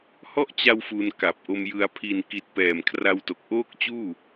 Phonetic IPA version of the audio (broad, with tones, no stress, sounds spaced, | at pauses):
h ɔ˥˩ ʔ t͡ɕ a˧ w f u˧ n k a˨˩ p̚ ʔ o˧ m j ɯ˧ a̯ pʰ i˨˩ n k i˨˩ t̚ p ɛː˨˩ m kʰ r a˧ w t o˨˩ k̚ ʔ oː˥˩ k̚ t͡ɕ uː˥˩